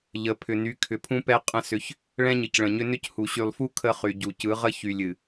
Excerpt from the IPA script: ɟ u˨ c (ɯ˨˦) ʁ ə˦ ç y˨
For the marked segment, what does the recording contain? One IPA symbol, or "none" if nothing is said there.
ɯ˨˦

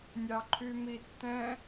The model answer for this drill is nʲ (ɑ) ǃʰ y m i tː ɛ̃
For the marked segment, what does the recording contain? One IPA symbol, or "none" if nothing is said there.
ɑ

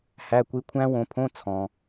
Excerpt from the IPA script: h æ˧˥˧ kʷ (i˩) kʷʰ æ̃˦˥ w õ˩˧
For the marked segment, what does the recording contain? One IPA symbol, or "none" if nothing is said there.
i˦˥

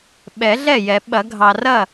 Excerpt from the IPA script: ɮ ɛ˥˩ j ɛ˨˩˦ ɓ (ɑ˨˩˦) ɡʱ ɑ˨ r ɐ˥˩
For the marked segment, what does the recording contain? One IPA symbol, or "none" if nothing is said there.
ɐ˨˩˦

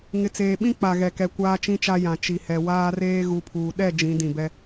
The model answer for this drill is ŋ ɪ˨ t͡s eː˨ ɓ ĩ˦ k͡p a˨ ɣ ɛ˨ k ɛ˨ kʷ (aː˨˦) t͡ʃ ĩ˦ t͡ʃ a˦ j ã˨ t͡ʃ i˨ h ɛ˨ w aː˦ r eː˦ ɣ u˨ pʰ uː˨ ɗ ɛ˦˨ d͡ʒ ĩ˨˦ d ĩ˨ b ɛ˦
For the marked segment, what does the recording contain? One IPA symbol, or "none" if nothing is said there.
aː˦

